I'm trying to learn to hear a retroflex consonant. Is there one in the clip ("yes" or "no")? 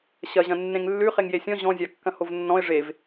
yes